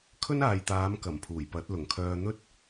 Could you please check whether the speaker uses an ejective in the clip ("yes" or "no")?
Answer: no